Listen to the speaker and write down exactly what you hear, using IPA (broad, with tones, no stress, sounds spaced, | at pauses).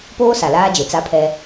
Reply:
p oː˦ s a˨ l aː˦ d͡ʒ e˨ t͡s a˦ pʰ ɛ˦